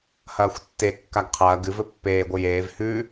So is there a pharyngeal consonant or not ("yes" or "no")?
no